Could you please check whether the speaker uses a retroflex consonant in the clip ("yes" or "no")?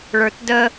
yes